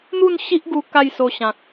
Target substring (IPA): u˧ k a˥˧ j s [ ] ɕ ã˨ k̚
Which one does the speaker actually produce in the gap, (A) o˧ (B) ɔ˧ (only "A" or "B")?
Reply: A